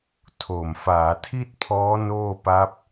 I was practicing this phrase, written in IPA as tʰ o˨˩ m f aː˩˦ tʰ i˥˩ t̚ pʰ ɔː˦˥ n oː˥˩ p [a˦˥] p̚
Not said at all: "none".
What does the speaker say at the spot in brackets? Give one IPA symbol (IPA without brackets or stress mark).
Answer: a˦˥